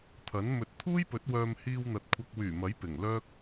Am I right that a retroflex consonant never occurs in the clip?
yes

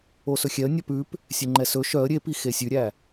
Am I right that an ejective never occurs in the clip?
yes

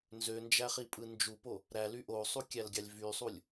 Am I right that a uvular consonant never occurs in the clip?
no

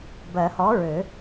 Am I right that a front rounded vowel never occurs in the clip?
no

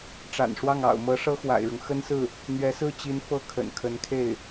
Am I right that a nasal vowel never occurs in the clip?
yes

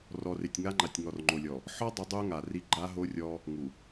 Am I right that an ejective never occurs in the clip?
yes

